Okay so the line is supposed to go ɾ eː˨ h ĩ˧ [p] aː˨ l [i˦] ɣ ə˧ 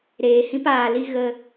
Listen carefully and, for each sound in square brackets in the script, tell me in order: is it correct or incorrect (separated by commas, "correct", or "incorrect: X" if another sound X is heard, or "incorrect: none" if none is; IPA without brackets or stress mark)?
correct, incorrect: i˧